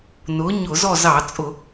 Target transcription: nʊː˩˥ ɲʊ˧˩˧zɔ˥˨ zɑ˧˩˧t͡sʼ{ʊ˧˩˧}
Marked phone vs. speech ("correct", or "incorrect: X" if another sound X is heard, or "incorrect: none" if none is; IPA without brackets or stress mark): correct